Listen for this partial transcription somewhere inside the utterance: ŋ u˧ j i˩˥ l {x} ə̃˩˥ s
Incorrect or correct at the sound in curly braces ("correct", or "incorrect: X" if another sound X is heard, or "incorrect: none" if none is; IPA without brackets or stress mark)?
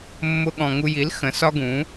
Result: correct